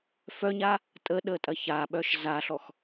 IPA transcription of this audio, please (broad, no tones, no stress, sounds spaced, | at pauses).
f œ ɲ a | tʼ ə ɗ ə tʼ ɐ ç a ɓ œ ʃ z a ɬ ɔ x